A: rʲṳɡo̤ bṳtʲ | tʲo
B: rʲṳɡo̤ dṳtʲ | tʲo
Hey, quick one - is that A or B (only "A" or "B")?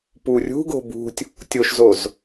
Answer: A